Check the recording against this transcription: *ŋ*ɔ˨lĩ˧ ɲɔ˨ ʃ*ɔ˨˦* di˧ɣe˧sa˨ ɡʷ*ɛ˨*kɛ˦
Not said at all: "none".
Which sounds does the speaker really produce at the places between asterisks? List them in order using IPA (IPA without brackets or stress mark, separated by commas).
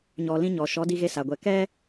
ɲ, ɔ˨˦, ɛ˨